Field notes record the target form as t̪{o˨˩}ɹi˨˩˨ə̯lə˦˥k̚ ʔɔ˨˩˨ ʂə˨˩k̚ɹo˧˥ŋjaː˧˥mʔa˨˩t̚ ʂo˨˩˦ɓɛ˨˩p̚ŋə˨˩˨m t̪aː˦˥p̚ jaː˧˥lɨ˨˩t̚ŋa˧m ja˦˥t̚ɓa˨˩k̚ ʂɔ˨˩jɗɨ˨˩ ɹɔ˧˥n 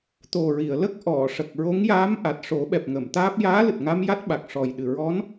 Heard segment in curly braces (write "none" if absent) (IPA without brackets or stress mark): o˨˩